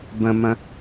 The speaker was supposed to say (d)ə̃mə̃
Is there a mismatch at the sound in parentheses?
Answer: yes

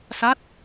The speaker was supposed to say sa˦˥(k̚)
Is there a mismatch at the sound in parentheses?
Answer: yes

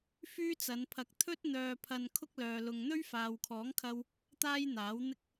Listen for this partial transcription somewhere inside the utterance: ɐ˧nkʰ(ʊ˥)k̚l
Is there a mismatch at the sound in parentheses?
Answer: no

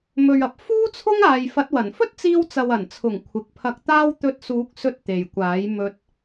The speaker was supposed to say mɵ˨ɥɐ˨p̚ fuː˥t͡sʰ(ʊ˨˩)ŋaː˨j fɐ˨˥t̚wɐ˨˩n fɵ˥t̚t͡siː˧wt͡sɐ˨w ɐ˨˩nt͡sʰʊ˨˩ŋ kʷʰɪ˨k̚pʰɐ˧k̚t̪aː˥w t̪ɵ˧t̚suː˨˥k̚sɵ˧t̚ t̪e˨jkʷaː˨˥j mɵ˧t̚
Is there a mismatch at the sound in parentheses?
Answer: yes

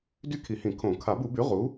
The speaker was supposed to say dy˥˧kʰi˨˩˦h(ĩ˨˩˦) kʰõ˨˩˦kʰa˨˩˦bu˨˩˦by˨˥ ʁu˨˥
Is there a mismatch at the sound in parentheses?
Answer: no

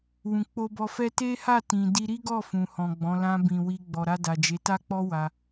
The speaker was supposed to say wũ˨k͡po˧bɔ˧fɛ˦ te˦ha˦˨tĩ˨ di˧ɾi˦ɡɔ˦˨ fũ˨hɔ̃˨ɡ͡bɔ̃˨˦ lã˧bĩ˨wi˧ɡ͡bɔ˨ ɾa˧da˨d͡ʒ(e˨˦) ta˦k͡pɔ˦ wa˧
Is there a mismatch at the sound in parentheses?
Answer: no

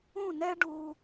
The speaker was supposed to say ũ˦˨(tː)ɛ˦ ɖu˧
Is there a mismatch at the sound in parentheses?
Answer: yes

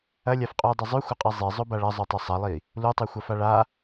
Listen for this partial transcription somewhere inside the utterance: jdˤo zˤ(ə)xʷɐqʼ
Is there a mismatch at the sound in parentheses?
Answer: yes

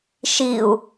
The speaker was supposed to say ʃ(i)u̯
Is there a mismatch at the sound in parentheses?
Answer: no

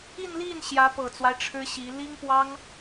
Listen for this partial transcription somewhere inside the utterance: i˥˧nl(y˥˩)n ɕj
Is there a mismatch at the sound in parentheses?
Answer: yes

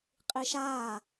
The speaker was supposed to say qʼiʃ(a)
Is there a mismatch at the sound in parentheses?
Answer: yes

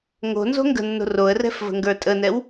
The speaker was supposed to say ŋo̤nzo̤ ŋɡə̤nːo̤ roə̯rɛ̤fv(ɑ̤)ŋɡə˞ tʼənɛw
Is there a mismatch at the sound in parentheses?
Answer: yes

